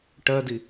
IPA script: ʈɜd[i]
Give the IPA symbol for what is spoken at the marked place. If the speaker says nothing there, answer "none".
i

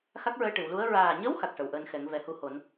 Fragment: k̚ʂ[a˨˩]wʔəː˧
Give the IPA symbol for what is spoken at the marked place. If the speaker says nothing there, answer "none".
ə˨˩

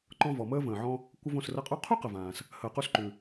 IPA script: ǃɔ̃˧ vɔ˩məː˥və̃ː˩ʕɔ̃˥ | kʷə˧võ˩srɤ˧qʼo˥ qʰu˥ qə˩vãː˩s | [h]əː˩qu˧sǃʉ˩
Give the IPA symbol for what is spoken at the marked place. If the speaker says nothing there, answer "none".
h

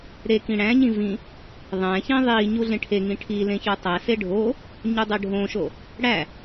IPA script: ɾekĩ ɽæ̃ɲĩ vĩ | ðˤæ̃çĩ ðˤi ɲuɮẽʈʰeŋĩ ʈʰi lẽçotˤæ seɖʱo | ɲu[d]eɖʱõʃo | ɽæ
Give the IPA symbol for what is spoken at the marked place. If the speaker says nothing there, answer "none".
dˤ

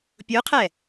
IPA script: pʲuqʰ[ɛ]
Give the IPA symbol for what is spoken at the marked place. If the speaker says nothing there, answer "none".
ɛ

